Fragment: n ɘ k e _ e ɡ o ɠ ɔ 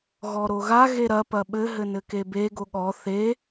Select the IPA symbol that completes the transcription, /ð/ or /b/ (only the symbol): b